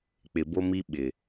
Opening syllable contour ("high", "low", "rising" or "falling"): low